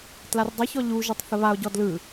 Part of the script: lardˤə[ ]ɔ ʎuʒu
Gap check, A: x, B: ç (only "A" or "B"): B